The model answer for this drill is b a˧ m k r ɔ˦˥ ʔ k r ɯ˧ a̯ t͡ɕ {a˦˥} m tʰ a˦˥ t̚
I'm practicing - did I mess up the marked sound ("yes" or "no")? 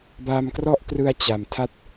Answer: yes